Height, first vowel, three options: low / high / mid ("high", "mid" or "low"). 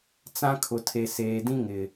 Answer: low